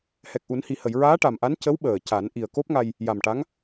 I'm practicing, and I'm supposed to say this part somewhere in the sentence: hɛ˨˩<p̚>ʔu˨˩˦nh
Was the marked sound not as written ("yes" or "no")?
yes